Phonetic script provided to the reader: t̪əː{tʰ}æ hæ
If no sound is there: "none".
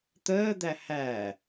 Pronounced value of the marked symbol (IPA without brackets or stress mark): d̪